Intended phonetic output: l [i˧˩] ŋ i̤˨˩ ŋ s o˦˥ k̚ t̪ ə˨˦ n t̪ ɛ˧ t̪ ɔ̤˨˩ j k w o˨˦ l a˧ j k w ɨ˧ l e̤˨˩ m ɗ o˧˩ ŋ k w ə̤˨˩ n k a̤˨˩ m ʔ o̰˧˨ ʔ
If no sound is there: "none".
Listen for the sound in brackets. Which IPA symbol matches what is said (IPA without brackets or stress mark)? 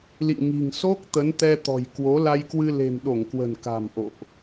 ḭ˧˨